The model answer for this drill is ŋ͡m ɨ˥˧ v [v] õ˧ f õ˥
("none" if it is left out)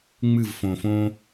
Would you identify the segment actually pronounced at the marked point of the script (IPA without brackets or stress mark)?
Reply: f